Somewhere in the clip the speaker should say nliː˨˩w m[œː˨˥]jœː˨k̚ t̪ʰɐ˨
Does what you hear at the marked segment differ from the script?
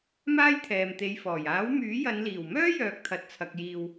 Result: yes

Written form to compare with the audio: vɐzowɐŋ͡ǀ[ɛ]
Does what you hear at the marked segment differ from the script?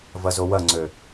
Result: yes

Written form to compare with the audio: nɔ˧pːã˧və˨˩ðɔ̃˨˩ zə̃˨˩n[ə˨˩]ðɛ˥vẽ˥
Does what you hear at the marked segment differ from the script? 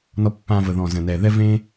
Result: yes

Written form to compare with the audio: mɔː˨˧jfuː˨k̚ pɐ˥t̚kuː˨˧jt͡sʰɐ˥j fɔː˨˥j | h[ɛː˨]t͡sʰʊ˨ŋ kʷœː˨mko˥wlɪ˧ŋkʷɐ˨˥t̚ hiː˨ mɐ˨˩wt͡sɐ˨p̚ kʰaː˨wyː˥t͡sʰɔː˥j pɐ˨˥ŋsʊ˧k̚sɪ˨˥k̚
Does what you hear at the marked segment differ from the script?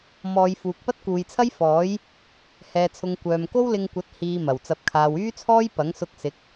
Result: no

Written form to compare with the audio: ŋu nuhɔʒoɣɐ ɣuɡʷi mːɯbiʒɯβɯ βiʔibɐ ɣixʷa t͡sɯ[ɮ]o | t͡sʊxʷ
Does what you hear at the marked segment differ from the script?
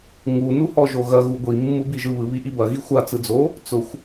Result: yes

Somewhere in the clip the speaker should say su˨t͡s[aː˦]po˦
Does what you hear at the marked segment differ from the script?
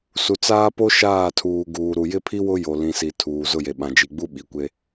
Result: no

